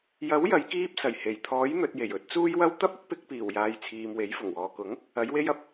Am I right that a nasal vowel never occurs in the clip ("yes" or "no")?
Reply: yes